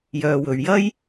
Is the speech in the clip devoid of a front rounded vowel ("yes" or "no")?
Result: no